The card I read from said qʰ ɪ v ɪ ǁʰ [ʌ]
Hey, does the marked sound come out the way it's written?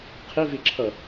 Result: yes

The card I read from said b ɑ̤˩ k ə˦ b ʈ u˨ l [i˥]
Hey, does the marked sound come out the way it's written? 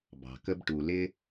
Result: no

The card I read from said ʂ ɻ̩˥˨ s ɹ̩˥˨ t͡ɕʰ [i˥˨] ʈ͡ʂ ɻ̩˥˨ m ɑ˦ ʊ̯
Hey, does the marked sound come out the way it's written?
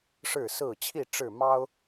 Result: yes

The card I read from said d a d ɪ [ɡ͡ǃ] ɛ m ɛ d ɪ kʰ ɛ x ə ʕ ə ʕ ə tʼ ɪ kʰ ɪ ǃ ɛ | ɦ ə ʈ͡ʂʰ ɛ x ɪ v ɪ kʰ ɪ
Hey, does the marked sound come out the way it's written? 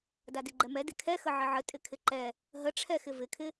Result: yes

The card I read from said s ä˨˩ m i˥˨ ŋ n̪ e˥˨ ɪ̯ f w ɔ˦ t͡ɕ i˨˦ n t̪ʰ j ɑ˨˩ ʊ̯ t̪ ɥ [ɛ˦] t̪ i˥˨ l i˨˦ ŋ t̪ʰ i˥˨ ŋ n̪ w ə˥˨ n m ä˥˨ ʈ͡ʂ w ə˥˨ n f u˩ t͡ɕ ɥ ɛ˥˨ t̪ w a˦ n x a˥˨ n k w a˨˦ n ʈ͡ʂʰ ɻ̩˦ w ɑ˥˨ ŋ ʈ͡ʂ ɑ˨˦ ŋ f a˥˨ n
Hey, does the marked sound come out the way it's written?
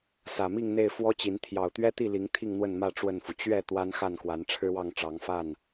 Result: yes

